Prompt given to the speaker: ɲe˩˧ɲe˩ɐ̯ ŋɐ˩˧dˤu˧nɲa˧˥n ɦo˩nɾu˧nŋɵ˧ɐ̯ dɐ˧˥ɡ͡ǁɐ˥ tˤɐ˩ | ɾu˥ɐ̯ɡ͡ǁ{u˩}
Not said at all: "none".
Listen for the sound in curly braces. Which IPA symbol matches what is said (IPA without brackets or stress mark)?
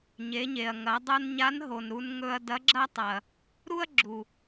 u˩